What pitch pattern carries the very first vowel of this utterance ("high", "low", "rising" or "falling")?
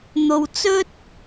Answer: low